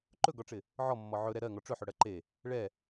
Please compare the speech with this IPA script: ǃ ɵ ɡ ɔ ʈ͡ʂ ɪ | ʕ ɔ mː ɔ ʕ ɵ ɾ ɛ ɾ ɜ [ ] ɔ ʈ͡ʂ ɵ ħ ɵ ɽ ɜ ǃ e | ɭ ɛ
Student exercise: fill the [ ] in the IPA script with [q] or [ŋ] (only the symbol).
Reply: ŋ